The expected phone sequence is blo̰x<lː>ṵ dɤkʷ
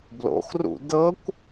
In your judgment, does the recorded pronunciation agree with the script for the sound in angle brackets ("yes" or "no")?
no